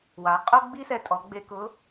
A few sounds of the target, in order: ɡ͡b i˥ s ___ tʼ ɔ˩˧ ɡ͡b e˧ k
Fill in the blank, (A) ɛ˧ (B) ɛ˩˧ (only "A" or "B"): A